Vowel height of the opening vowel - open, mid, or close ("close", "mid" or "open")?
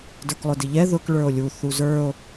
mid